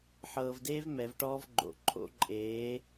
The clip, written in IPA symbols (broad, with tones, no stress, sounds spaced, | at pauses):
ħ ɤː˧ v d eː˦ v m ɛ˨˦ v ʈ ɔː˦ v ɡ͡ǃ o̰˨ ǃʰ o̰˦ ǃʼ eː˨˦